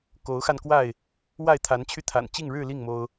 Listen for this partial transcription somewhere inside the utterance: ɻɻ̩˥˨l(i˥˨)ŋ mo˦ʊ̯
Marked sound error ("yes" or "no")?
no